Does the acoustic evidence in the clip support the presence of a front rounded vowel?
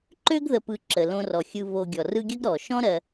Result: yes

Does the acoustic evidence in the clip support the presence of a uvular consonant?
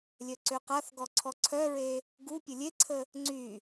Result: yes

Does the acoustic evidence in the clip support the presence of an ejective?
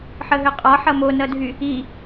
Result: yes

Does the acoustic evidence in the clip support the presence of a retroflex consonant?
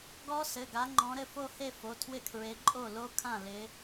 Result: no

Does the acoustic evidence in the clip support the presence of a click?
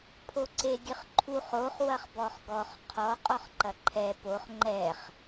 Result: yes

